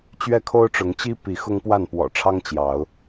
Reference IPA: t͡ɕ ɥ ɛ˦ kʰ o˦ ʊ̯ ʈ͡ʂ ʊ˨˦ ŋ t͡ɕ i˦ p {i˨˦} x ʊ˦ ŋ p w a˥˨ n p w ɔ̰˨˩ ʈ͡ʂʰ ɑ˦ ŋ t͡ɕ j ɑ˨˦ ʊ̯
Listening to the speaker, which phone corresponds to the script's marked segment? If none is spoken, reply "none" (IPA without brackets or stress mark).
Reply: i˨˦